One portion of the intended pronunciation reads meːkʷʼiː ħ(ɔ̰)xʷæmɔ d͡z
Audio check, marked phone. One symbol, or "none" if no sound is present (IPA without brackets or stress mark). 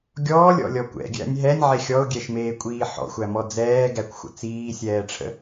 ɔ̰